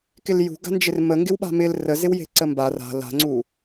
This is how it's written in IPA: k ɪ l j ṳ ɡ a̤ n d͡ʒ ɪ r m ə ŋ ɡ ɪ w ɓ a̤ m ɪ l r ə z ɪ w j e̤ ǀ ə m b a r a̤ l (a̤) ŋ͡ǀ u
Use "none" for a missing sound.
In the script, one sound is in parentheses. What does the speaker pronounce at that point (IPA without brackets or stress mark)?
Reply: a̤